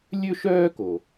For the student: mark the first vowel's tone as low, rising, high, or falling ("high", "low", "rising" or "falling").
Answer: high